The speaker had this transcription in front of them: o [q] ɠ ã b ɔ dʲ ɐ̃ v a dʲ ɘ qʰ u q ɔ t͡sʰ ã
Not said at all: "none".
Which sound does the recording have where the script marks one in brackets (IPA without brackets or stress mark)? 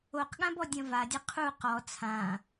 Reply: q